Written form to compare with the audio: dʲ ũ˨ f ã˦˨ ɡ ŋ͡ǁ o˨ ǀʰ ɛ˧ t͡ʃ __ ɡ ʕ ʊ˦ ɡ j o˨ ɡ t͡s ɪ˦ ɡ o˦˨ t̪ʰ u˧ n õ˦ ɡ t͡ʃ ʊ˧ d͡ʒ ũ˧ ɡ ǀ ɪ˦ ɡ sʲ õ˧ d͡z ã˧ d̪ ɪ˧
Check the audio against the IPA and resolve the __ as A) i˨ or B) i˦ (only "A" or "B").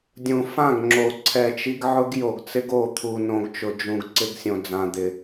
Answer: B